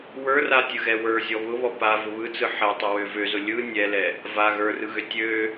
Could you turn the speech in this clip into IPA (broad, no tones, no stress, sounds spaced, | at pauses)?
w ə˞ r a tʲ ɯ ɣ ɛ w ə˞ zʲ ɔ β ʊ β ɔ p a v ʊ β ɯ t͡s ɯ ħ ɛ tˤ ʊ w ø v ø z ʊ lʲ ɯ nʲ ɛ l ɛ | v a ɣ ə˞ r ɯ ɣ ø tʲ ø